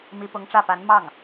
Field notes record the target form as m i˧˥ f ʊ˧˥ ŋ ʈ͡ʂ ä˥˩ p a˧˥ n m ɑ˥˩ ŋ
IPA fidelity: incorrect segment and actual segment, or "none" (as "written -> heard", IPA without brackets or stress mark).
f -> p